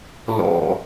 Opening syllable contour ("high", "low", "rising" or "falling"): low